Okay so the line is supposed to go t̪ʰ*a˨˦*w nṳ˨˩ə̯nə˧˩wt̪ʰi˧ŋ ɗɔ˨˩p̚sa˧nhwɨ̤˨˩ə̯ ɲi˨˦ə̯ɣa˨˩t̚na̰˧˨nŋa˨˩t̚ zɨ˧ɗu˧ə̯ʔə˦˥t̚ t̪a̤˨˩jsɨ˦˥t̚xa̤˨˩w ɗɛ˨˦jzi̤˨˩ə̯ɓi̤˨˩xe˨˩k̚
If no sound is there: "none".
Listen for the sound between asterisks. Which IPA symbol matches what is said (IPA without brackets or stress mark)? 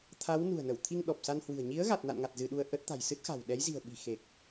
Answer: a˨˦